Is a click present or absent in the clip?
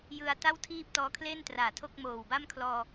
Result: absent